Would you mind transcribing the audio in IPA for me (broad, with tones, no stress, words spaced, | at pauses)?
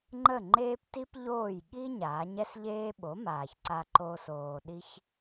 ŋ͡ǃə˥˩ŋ͡ǃeː˥pti˥pʎoː˥˩j ɠi˥ ɲaː˩˥ɲɛ˥sʎeː˥ ɓo˩˥ maː˩çǀa˧ǃoː˧s oː˩ɗi˧ç